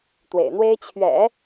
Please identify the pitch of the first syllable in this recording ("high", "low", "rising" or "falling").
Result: low